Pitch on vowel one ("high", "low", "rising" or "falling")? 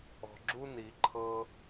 low